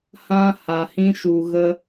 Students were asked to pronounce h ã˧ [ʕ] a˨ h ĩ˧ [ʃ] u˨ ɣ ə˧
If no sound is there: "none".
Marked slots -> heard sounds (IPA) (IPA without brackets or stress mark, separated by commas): h, ʃ